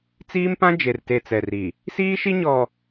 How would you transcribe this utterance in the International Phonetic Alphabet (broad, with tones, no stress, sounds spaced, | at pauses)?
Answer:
t͡s iː˦ m p ã˦ d͡ʒ e˨ r t e˨ t͡s ɛ˨ r i˨ | s iː˦ ʃ i˦ ɲ ɔ˨